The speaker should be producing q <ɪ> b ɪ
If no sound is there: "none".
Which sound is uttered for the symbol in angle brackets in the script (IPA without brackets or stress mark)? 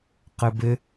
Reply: ɪ